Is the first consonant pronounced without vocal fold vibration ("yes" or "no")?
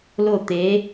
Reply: no